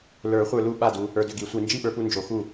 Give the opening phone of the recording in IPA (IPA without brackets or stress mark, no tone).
l